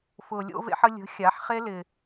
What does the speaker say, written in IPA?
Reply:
f ʊː˨ lʲ o̰˧ v ḛ˧ ħ ə˧ lʲ ə̤˨˦ xʲ a˨˦ ħ χ e˦ l ɪ˧

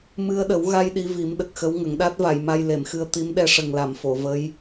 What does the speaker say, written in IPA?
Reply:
m ɨ˧ ə̯ ɗ ə˨˩˦ w ɣ a˧ j ɗ i˧˥ v i˨˩˦ m ɗ ə˨˩ k̚ x ə˧˥ w ŋ ə˨˩˨ ŋ ɗ a˦˥ t̚ v a˨˩˨ j m a˧ j l e˨˩˨ m x ɨ˧ ə̯ t̪ i˧˥ m ɗ ɛ˧˥ ʂ ə˨˩ ŋ l a˨˩˨ m f o˨˩˨ v ə˧˥ j

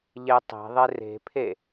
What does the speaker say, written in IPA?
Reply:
ʎ e tˤ e̤ ðˤ e r e̤ pʰ e

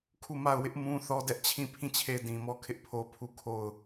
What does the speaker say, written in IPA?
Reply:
kʰ u˦˨ m a˦˨ ʊ̯ w ɪ˦ ʔ m ũ˦ θ ɔ˦ d ɛ˦ ʔ t͡ɕʰ ĩ˦˨ pʰ ĩ˦˨ t͡ɕʰ e˦˨ ɪ̯ d ĩ˨ m ɔ˦ kʰ ɪ˦ ʔ pʰ o˦ pʰ u˦˨ kʰ o˦˨ ʊ̯

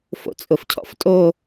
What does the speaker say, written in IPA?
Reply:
f o̰ t͡sʼ ʊ f cʰ ɔ̰ f tʼ o

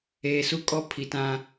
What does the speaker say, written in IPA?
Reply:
eː˨ s u˦ kʼ ɔ˦ pʰ i˨ t ã˦

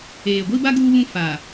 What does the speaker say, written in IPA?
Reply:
eː˨ ɡʷ i˦ b a˦ ɡ uː˦ β ũ˦ f aː˨

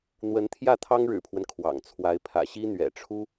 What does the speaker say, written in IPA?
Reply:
n̪ w ə˧˥ n t̪ʰ j ä˥˩ t̪ʰ ɑ˥ ŋ ɻ ɻ̩˨˩ pʰ w ə˦ n kʰ w ɑ̰˨˩ ŋ t͡sʰ w a˧˥ ɪ̯ pʰ ä̰˨˩ ɕ i˥ n̪ ɥ ɛ̰˨˩ ʈ͡ʂʰ u˥

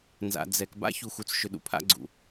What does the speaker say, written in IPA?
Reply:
n z a̰˨ d͡z ɛ˨ k b a̰˦ ç u˨ x u˨ t͡s ʃ ʏ˨ ɗ ṵ˨ pʰ a̰˧ ɡ͡ǀ ṵ˨

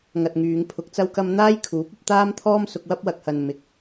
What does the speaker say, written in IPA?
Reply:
ŋ ɐ˧ t̚ ŋ yː˨˧ ŋ pʰ ʊ˨˥ k̚ t͡s ɐ˥ w k ɐ˥ m n̪ aː˥ j kʰ uː˨˥ p̚ ɐ˧ p̚ t̪ aː˥ m t̪ʰ ɔː˥ m s ʊ˧ k̚ w ɐ˥ p̚ w ɐ˨ k̚ h ɐ˨ n m ɪ˨ k̚

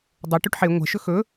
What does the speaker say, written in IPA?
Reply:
dˤ o ʈ ʉ ʈ ħ e ŋʷ ɛ̤ ʃ ɵ x ɵ

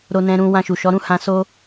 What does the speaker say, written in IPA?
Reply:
ɾ o˦ n ɛ̃˦ ɾ ũ˦ w ã˧ ʃ u˨ ʃ ɔ˨˦ ɾ ũ˦˨ h ã˧ s o˦

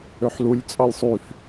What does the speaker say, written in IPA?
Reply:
ø ħ l u lʲ t͡sʼ ɑ lʲ sˤ y f

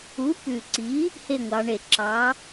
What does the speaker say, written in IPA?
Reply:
u˨˥ p ʉ˨˩ ǀ i˨˥ | h e˦˨ ŋʷ ɑ˩˧ ɳ e˨˩ ǁ ɑ˨˥

